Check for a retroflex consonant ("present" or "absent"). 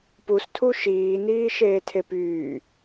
absent